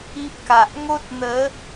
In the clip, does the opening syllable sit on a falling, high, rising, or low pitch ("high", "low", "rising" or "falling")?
high